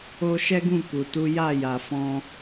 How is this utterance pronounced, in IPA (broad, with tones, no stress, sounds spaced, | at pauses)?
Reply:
o˧ ʃ ɛ˦ ɡ ũ˦˨ k u˨ t u˨˦ j a˦˨ j a˨ f ɔ̃˧